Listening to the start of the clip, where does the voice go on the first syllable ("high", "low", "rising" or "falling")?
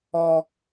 high